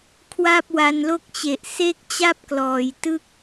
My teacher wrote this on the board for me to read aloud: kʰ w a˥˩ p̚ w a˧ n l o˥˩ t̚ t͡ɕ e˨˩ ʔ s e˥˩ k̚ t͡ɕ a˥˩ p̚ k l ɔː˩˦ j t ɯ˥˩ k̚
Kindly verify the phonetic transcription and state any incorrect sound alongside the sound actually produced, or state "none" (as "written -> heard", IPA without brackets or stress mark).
t̚ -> k̚